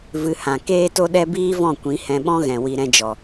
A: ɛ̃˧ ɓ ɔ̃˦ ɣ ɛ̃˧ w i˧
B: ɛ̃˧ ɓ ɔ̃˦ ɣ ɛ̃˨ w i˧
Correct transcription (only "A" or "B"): B